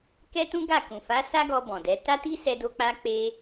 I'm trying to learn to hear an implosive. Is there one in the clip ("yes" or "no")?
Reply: no